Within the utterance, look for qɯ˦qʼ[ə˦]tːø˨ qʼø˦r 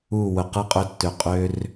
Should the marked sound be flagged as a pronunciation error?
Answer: yes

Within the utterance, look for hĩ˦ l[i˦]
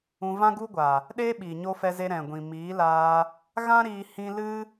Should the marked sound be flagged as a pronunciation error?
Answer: yes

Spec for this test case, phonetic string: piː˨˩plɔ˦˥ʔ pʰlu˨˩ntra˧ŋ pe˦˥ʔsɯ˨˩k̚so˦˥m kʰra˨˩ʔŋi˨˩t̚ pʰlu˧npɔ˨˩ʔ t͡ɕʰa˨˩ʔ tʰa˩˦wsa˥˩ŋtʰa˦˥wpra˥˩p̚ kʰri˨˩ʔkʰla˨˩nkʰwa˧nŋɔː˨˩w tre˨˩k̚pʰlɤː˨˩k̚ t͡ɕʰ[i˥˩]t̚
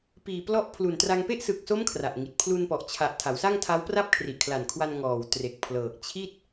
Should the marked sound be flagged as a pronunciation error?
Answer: no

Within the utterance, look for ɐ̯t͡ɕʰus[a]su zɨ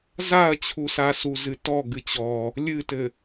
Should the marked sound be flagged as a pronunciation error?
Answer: no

